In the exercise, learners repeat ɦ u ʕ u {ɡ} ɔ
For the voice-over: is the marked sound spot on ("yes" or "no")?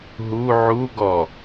yes